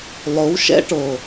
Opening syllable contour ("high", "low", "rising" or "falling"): rising